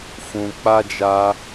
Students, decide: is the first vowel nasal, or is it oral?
nasal